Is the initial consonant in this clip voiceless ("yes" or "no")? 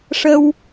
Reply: yes